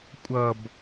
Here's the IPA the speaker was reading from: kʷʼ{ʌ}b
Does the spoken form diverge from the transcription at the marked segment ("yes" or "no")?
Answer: no